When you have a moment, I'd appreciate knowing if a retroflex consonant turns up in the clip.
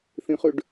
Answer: yes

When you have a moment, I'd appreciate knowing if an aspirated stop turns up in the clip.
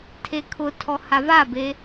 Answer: yes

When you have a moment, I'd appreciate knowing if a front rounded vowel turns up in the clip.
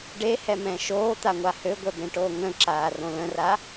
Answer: yes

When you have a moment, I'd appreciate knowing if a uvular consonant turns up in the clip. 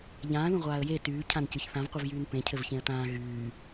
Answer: yes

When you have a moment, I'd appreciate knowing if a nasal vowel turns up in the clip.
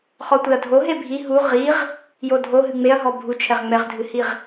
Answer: no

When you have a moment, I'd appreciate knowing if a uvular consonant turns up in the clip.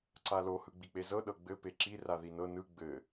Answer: no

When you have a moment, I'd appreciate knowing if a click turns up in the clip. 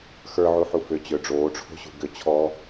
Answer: no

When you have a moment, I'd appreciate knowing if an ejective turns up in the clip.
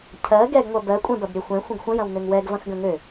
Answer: yes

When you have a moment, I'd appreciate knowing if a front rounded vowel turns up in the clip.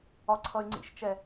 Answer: yes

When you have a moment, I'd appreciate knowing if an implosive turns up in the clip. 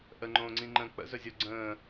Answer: no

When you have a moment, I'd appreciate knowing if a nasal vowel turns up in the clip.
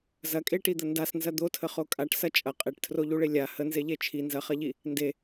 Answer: no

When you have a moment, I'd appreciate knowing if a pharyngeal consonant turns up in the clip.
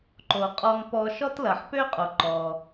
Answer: yes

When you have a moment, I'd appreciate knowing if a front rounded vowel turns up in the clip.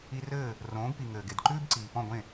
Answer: no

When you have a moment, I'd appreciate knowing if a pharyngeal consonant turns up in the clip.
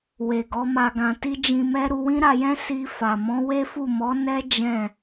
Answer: no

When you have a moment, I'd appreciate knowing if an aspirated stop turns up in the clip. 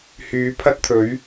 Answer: yes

